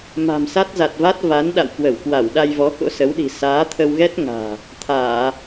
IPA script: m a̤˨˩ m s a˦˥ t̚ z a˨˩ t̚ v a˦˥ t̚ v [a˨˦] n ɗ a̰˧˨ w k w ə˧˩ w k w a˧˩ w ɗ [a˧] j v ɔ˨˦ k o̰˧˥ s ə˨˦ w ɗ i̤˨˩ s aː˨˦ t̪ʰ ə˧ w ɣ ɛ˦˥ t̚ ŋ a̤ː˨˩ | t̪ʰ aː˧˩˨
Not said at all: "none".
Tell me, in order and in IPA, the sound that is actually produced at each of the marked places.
a˨˦, a˧

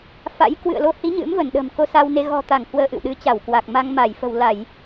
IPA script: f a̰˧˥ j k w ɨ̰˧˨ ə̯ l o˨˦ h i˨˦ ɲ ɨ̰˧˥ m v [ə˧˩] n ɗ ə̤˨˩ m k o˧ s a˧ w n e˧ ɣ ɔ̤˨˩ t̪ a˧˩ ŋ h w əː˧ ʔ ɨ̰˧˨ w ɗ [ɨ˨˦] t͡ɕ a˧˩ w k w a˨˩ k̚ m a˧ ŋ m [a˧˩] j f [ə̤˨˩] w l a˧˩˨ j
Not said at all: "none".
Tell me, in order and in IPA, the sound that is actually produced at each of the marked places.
ə˧˩, ɨ˨˦, a˧˩, ə̤˨˩

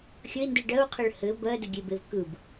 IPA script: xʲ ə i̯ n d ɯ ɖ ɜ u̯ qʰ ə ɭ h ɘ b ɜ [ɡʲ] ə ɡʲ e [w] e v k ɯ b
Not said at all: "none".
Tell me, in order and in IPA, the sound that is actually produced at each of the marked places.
d, b

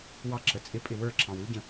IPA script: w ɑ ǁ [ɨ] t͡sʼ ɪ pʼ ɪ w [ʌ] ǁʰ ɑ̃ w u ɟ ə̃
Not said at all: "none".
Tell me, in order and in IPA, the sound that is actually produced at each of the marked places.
ə, ə˞

